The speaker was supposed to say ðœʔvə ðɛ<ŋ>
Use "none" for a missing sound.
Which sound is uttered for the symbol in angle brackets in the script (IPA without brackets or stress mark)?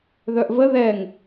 ŋ